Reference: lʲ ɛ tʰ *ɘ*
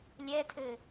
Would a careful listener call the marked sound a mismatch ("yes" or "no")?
no